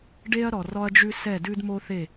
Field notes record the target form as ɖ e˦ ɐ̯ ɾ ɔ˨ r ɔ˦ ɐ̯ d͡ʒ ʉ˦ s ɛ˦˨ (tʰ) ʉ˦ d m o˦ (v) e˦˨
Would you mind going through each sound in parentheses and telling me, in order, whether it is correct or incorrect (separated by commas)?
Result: incorrect, incorrect